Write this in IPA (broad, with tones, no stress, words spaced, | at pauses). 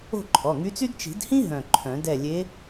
o̤˥˨ǃʰɔ˩˧˩ŋy˧˥t͡sy˥d t͡ʃi̤˨˩˦dhĩ˥ ɦœ̃˧˩ǃʰœ̃˨˩˦dɛ˥˨ lʲe˧˥